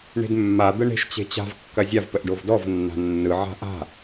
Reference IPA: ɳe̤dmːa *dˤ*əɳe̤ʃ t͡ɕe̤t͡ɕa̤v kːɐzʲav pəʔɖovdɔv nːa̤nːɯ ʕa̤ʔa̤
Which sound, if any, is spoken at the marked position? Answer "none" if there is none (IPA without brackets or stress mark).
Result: d̪